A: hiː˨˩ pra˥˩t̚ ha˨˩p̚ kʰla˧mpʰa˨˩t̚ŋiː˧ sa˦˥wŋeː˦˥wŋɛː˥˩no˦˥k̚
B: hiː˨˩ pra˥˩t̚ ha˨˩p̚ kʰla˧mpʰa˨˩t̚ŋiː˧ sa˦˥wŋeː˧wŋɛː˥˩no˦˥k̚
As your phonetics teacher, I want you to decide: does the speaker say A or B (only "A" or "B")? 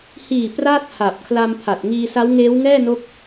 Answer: A